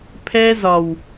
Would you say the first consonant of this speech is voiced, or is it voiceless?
voiceless